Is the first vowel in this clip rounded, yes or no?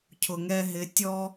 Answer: yes